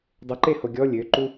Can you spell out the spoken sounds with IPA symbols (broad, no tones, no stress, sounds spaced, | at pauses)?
dˤ ə ǃ e h o ɡʲ ɔ lʲ ø ǃ u